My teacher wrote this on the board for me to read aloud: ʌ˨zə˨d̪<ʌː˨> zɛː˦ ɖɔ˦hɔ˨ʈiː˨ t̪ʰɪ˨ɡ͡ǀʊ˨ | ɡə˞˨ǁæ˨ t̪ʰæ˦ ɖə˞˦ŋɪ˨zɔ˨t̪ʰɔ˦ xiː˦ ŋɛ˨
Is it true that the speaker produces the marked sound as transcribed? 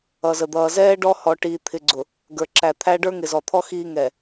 yes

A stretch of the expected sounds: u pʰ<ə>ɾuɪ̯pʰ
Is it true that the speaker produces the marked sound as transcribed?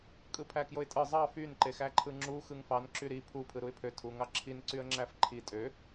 no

